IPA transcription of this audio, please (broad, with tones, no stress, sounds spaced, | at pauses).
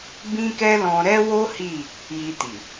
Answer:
b ĩ˦ k ɛ˦ l ɔ̃˧ ɾ ɛ˦ w o˦ h i˦˨ | j i˧ t i˨